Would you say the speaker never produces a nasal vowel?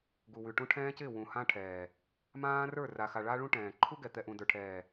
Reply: no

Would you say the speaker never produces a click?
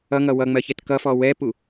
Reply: yes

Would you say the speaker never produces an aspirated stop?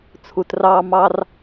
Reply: no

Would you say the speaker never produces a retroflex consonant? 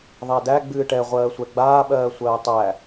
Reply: no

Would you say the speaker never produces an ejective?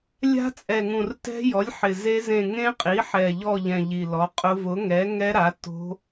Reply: no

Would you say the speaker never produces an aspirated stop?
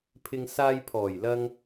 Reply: no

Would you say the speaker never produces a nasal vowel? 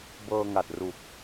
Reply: yes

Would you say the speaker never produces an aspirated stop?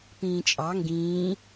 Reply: yes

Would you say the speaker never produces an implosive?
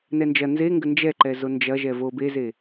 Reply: yes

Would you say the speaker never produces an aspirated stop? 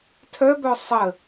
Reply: no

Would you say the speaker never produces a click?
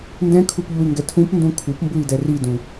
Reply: yes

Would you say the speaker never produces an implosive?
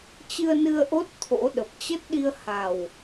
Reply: no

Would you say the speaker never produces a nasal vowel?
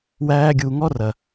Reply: yes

